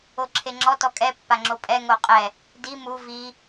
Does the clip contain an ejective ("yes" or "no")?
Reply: yes